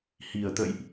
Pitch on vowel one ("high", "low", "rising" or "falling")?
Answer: low